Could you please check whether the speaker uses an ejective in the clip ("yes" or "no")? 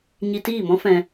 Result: no